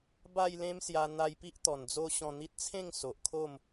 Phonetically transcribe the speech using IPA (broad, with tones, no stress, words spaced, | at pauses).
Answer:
ba˥˧jlẽ˦msja˧ n̪a˧jpi˦ʔ t̪ɔ˨˩nd͡zo˦ ɕɔ̃˧n̪i˦t̚ t͡sʰẽ˥˧ŋ so˨ʔkʰo˥˧m